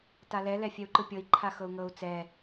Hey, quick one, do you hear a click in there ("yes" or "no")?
yes